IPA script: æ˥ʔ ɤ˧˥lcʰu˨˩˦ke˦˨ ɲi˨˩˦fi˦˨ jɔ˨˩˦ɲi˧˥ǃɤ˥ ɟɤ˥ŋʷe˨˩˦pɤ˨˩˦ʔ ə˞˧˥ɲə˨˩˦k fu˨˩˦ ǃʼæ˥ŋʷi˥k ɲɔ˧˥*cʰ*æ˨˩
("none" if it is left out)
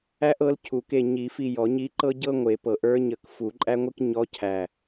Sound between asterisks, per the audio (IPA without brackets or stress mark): cʰ